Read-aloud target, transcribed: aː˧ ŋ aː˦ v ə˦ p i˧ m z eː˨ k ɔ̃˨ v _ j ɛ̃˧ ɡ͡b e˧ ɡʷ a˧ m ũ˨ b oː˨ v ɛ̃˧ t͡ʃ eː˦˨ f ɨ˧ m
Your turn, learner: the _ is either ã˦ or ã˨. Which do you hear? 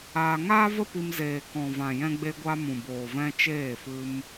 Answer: ã˨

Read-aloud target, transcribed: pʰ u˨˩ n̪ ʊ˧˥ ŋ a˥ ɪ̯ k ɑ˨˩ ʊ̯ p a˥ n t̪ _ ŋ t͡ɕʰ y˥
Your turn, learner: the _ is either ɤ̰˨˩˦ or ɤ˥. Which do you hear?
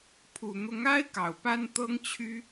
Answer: ɤ˥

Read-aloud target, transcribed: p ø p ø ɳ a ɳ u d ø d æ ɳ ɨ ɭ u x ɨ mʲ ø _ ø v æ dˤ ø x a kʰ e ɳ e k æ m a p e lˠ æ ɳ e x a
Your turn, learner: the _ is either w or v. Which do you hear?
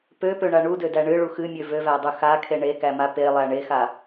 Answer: v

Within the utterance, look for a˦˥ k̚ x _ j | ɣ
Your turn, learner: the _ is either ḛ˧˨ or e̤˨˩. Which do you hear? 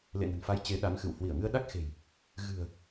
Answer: e̤˨˩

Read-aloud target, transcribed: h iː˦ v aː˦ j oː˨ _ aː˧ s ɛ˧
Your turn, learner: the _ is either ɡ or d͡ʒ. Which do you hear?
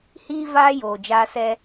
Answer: d͡ʒ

